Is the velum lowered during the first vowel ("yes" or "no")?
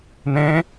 yes